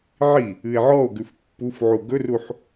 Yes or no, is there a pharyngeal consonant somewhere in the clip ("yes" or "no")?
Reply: yes